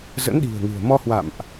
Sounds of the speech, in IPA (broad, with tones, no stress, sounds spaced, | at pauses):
z ə̰˧˥ n ɗ i̤˨˩ ə̯ ŋ ɨ̤˨˩ ə̯ m ɔ˧ h w a̰˧˨ m ʔ